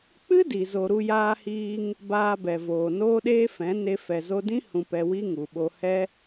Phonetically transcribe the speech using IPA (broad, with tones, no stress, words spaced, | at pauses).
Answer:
k͡pɨ˦ di˨ zo˨ɾu˧jaː˧hiː˧ŋ | baː˧bɛ˨ voː˨noː˦ɗeː˦fɛ̃˨˦ ne˧ fɛ˨zo˧dĩ˦ hũ˧pɛ˧ wi˦ŋu˨ɓo˧ hɛ˦